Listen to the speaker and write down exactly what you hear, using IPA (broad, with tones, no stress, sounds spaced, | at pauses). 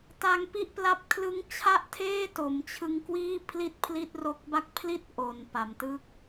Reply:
t a˧ ŋ p i˥˩ ʔ p l a˥˩ p̚ kʰ l ɯ˦˥ ŋ t͡ɕʰ a˥˩ ʔ tʰ eː˥˩ t o˩˦ m t͡ɕʰ ɯ˦˥ ŋ k w iː˥˩ pʰ l i˥˩ t̚ pʰ l i˥˩ t̚ r o˦˥ k̚ b a˥˩ k̚ pʰ l i˦˥ t̚ ʔ o˨˩ n p a˩˦ m t ɯ˥˩ k̚